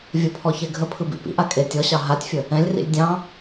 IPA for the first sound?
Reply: vʲ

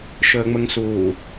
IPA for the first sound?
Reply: ʃ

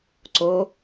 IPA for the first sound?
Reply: ǀ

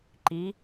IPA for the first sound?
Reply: ǃ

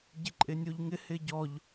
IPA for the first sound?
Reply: ɟ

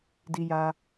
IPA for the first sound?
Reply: d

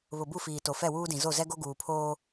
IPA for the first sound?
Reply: β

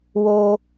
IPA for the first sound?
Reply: w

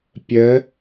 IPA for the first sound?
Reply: pʲ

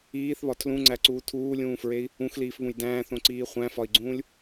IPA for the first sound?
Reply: iː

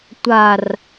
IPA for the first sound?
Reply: tʷ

